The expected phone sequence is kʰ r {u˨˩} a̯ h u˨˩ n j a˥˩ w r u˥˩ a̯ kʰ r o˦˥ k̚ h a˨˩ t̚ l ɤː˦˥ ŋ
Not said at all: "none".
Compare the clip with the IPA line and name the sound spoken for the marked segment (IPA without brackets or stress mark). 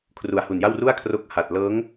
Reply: u˨˩